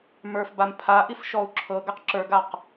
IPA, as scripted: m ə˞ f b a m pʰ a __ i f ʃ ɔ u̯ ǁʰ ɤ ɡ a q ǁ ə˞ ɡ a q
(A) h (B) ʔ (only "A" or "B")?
B